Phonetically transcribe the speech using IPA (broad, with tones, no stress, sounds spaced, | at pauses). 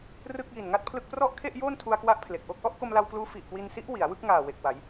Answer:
r ɯ˥˩ k̚ j i˨˩ n ŋ a˥˩ t̚ pʰ l ɯ˥˩ k̚ p r ɔ˥˩ ʔ kʰ e˥˩ ʔ j oː˥˩ n tʰ u˧ a̯ k w a˦˥ ʔ pʰ l e˨˩ k̚ ʔ o˥˩ k̚ ʔ ɔ˥˩ ʔ k o˧ m l a˧ w k l uː˦˥ f i˨˩ ʔ k w i˧ n s i˦˥ ʔ w i˩˦ a̯ w ɯ˥˩ k̚ ŋ aː˨˩ w e˨˩ k̚ w a˩˦ j